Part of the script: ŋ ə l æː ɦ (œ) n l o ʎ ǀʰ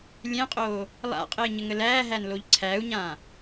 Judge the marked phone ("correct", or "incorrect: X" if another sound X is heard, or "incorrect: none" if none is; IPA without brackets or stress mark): incorrect: æ